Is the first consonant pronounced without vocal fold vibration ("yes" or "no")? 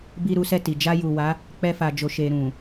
no